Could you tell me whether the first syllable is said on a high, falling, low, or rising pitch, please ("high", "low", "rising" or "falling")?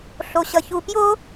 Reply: low